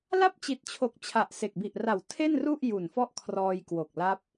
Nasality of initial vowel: oral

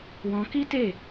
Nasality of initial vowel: nasal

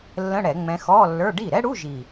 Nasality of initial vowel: nasal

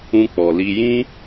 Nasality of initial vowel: nasal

